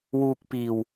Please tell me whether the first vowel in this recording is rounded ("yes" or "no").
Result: yes